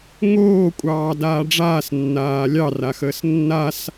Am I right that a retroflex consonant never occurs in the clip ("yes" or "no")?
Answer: no